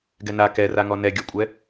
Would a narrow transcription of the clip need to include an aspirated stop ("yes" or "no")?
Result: no